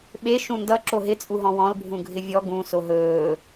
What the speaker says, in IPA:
ɓe ʃũndʌ ǁoɦɪ t͡sʼuɦɔ̃wɔ̃l bʱũɡʱɪvʲɔ ɡũ soɦɵː

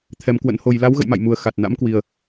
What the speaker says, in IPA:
t̪ʰɛ˧mkwə̰˧˥nho˧j la˨˦wɣə̰˧˨jma̰˧˨j mu˨˩ə̯ xa˨˩t̚na̰˧˥mkwi˨˩ə̯

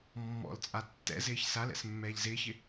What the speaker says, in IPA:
mːɔ̰lt͡sʼa tːɛ̰zɪːç salɛ̰s mːɛːʎzɪːçɪ

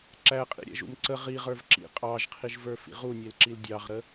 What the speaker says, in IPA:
ǁæqʼḭɾʲæ̰ʒṵm ǀə ʁiʁə˞v ǁḭ qʼɑʒqʰiʒvə˞fḭ ʁunʲelǁil dʲɑʁɾə

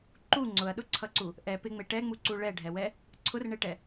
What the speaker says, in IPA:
ǃu ŋ͡ǀʊɐ̯ɗʊǀʰʌǀu | ʔɛ pɪŋ͡me ʈɛŋ͡muǀu ɭɛɖʱɛwɛ | ǀʰʊrɳeʈɛ

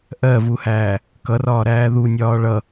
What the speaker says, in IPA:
ʔɜvuhæː | kʌrɒːɾæː ðunʲɒː ɭʌ

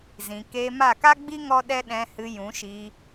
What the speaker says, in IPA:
zĩ˨ keː˧ma˦˨ ka˦ɡ͡bi˦ ŋɔ˦ɗɛ˦ ɗɛ̃˧hɨ˧jũ˨˦ʃi˧

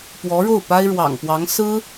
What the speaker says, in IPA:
pwɔ˧˥ɻo˥˩ʊ̯ pa˥ɪ̯ɻwɑ̰˨˩ŋpwɑ˧˥ŋ sɹ̩˥

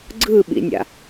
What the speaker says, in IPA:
ɡ͡ǀɯɓḭnʲa̰

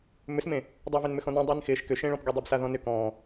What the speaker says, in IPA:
mʏsmẽ | dˤœvɪnmʏ xɔ̃nẽ dˤɪːnxɪːʃ kʏʃẽɭɔ̃pɡø dˤabsaðɔ̃nʏ kɔ̃ː

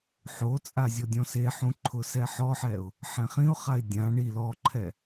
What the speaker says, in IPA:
ħot͡sʼa zʲɔdʲɔ̃seħũ ǃʰʊsɛħɔħɛʊ̯ | ħɛ̃χĩʊ̯χaɪ̯ dʲã ɳi lɔǃʰɛ

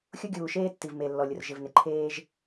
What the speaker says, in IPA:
xʲʊ˦ɡʲuː˨ʃeː˦ tːi˨vme˨ lːɔ˨lʲʊ˨r ʒɪ˨vnɪ˨ǃʰeː˦ʒ

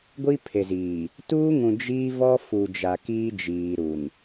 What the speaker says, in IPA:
ɡʷi˦pʰe˨ziː˨ | tuː˦ŋũ˨ d͡ʒi˦vɔ˦ fu˨d͡ʒa˨ kiː˦d͡ʒiː˨ɾu˨n

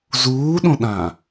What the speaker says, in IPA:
zuːɗõɗã

